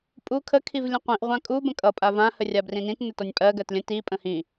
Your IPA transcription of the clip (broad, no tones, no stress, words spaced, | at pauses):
pʼu kʰə kʰivlʲə̃qʷĩʔ ʁʷãkʼu bə̃kʼʌ pʼavã hərʲabrĩnĩt nətɔnʲpʼɜ ɡɜtlʲə̃ ti pʼə̃hĩ